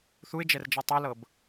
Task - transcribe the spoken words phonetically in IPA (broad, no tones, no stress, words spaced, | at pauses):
θuɪ̯d͡ʒɛrd͡ʒa tˤɤlɤb